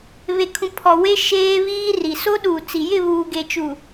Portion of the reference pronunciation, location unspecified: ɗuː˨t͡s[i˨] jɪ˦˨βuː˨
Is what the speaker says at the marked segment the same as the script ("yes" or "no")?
yes